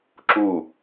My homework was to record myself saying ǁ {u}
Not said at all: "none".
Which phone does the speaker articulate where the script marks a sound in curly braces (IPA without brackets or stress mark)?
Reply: u